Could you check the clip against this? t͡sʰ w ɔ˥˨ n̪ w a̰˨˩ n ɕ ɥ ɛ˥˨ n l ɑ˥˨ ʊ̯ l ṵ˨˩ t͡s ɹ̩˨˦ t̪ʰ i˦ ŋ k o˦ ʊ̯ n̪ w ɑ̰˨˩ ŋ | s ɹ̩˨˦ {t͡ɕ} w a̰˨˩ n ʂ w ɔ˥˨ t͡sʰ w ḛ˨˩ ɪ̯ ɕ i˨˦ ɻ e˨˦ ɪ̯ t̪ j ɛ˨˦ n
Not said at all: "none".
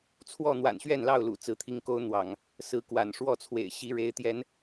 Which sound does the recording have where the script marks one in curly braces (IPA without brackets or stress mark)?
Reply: k